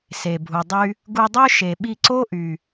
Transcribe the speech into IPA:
s e˨ bʱ u˨ dˤ y˦ | ɡ u˧ dˤ ø˦ ʃ e˨ ɓ i˧ ǀ o˦ ʔ y˨

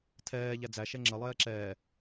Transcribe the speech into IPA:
tʰ ɛː ʎ æ d͡z æ ʃ ɛ ŋ͡ǁ ə lˠ ɛː ǁ ɛː

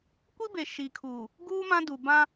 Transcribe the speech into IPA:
kʷ i˦ b e˨ ʃ i˨ kʰ uː˨ | ɡ uː˦ m ã˦ d u˨ b ã˦

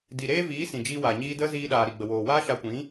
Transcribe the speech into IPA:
d i˨ ɾ eː˦ v iː˨˦ s ĩ˨ d͡ʒ iː˧ w aː˨ ɲ iː˧ d ə˦ z iː˧ ɗ aː˨ ɾ i˨ ɡ͡b ə˨ w oː˨ w aː˦ ʃ a˧ kʷ ĩ˨˦

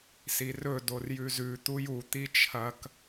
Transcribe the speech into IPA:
s i r ɵ d o r j ʉ z ʉ t̪ u j u t̪ i t͡ʃʰ ɐ k

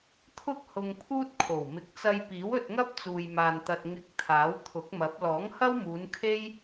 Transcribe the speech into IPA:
t̪ʰ ʊ˥ k̚ h ʊ˧ ŋ pʰ uː˥ t̚ kʰ o˨˩ w m ɪ˨ k̚ t͡s ɐ˧ j p iː˨˥ w ɵ˧ t̚ ŋ ɐ˥ p̚ t͡s uː˨ j m aː˨ n t̪ ɐ˨ t̚ ŋ ɪ˧ k̚ t̪ʰ aː˨˥ w t̪ʰ ʊ˨˥ k̚ m ɐ˨˥ p̚ l ɔː˨˥ ŋ h ɐ˥ w m uː˨˧ n kʰ e˥ j

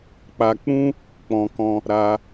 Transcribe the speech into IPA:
k͡p a˨ k͡p ũ˧ | k͡p ɔ̃˧ k ɔ̃˦ | ɾ a˧

